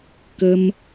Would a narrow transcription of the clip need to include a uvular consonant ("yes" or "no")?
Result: no